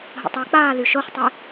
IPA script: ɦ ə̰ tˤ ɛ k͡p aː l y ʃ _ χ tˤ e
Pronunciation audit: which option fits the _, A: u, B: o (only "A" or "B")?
B